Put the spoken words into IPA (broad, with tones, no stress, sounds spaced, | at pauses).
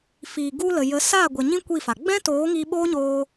f iː˨ ɡ u˧ l ə˨ j ə˨˦ s a˦˨ ɡʷ ɛ˨ ɲ ĩ˦ kʷ i˦˨ f a˨ ɡ͡b ɛ̃˦ t oː˨˦ ŋ iː˧ ɓ oː˦ ɲ oː˧